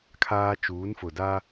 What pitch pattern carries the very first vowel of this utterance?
high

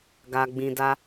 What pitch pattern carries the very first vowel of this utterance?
low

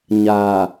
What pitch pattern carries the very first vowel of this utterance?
low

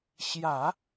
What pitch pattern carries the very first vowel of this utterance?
low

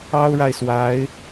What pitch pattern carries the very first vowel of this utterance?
high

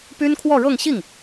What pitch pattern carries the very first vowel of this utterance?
high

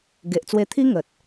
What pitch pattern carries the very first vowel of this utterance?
low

